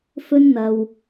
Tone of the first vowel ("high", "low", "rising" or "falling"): high